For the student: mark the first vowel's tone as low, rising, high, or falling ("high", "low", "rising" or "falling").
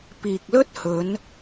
low